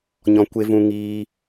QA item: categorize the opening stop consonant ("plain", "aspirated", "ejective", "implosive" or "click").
plain